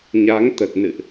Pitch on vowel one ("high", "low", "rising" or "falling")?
rising